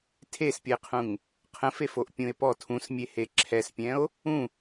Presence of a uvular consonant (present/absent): present